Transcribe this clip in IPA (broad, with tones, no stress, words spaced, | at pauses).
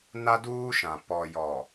na˦duː˦ʃã˨ pɔ˨jɔ˨